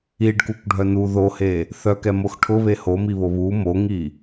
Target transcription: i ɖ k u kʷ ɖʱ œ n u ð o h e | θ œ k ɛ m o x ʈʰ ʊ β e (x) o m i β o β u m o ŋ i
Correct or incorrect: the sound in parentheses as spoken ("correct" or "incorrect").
incorrect